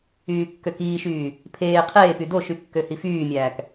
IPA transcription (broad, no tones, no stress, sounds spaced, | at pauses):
yː kː ø k iː ʃ yː | pʰ eː qʰ eː p y d o ʃ y kː ø h i f yː mʲ æː k